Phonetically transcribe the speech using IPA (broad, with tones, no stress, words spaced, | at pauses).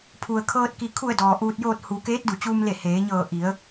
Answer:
pʰu˩ə̯kʰɤː˧t̚ ki˩kʰu˧˩ə̯ dɔː˩ʔuː˧t̚joː˥˨t̚ hu˩˧ keː˧˥t̚du˩t͡ɕuː˧mle˧˩ heː˩˧ɲɤː˧˩ ʔi˩˧ə̯